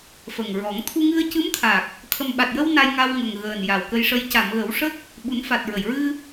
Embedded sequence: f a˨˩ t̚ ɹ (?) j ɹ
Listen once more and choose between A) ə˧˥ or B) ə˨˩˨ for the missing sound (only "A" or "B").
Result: B